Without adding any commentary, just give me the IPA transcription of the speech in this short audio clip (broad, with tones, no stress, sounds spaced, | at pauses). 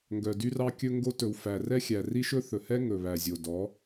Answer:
ŋ ɡ œ˨ d y˦ r ɑ˦ kʲ ɵ˦ ŋ ɡ o˦ t ɵ˨ w f æ˨ r ɛ˦ xʲ æ˨ r i˦ ʃ ɵ˦ θ ɵ˨ h ɛ˦ ŋ ɵ˨ β æ˨ zʲ o˨ d ɔ˨˦